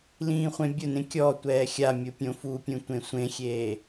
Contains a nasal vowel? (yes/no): yes